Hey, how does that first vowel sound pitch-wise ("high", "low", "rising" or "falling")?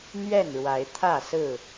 falling